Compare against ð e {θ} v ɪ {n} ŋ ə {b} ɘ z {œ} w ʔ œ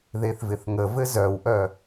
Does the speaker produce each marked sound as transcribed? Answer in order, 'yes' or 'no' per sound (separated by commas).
yes, no, no, yes